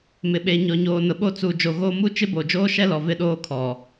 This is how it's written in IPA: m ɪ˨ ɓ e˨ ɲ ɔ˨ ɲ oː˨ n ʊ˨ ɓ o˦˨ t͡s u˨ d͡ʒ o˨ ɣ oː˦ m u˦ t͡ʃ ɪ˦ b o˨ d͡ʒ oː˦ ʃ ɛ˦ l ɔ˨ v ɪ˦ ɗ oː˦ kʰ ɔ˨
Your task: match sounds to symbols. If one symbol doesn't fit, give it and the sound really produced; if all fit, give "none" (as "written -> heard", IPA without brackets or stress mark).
none